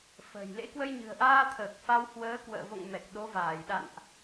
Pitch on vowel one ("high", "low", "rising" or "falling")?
low